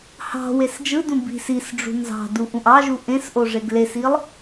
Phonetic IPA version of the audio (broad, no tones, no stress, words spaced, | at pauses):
hɑ̤ wesd͡ʒɯdũ bi̤ sisɖ͡ʐṳ nzɑ̤du ʔũʔɑʒu ʔẽs ʔoʐeɡlesilˠ